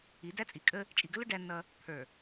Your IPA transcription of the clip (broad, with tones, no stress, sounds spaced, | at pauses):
i˨˦ d æ˦ t͡sʼ i˨ kʼ ə˦ | t͡ʃʼ i˨ ɡ ə˦ l ʊ˦ ɖ æ˦ nː ʌ˦ | t̪ʰ ə˞˨